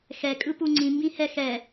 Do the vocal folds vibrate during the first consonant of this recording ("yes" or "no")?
no